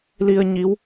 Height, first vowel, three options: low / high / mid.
high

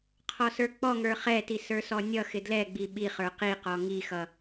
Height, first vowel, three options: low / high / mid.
mid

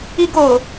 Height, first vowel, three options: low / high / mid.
high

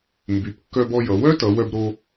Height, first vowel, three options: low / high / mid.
high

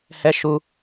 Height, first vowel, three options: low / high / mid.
mid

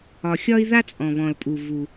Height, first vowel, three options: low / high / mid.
low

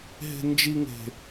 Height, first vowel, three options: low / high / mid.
mid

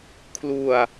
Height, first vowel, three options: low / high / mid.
high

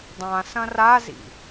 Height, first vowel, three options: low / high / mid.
low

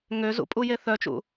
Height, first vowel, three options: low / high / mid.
mid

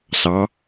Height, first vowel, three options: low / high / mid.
low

